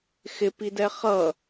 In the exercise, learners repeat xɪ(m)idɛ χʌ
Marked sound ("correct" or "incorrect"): incorrect